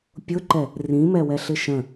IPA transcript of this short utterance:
pʲ ʊ ǃ ɛ | r ĩ m ɛ w ɛ ɬ ɪ ʃ ə̃

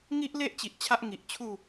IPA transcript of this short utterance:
ŋ i˦ ʔ l e˦ ʔ t͡ɕ i˨ ʔ t͡ɕʰ a˦ ʔ ŋ i˨ ʔ t͡ɕʰ u˥˧

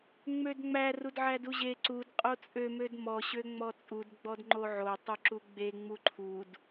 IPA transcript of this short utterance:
ŋ͡m ø d ŋ͡m æ r u d ʕ æ d u ʑ e ǀ u d qʼ o t͡sʼ ø m ø d m ɔ ɕ ø ŋ͡m ɔ t͡sʼ u d ɡ͡b ɔ d ŋ͡ǃ o ʕ o tˤ u ǁ u ɡ͡b e ŋ͡m u ǃʰ u d

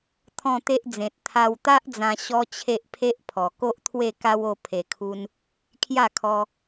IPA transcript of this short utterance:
t̪ʰ ɔ̃˥˧ t̪ e˦ ʔ d͡z ẽ˨ t̚ t̪ʰ a˧ w t̪ a˦ ʔ d͡z ã˧ ɕ ɔ˦ t͡ɕʰ e˦ ʔ pʰ e˦ ʔ pʰ ɔ˨˩ k o˦ ʔ t̪ʰ w e˥˧ k a˦ w o˧ pʰ e˨˩ kʰ u˧ n | kʰ j a˥˧ kʰ ɔ˧

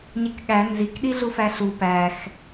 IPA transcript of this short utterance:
ɲ e k ɠ æ n z i k ɗ i ɮ u f æ ɬ u p æ x

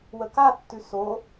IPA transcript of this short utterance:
w ə k a tː ʉ s o

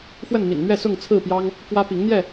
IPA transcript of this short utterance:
f w ə˥˨ n m ḭ˨˩ n n̪ ɥ ɛ˥˨ s ʊ˥˨ ŋ t͡sʰ ɹ̩˥˨ p j ɑ˦ ŋ | k w ä˦ p i˨˦ ŋ n̪ j ɛ˥˨

